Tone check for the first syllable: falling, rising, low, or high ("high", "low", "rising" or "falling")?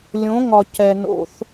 rising